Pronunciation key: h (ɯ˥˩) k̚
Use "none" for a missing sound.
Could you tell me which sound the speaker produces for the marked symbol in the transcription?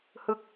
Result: ɯ˥˩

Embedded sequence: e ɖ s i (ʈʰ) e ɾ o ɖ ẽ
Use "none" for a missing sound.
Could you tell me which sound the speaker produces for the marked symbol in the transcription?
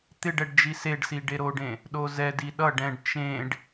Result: ɖ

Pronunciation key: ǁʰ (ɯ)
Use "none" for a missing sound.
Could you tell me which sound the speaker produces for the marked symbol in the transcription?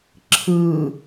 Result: ɯ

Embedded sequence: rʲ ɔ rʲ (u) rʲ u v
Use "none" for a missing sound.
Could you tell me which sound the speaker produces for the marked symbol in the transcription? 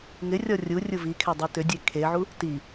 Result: u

